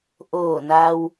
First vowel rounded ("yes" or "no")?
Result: yes